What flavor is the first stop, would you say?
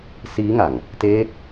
plain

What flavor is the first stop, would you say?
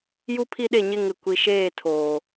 aspirated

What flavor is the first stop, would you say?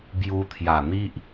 plain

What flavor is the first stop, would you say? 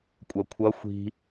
ejective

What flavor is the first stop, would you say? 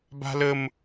plain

